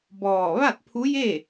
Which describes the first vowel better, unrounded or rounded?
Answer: rounded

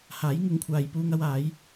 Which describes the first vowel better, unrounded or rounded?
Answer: unrounded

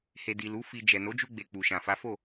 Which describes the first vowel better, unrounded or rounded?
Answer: unrounded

